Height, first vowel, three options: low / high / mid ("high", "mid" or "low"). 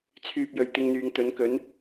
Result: high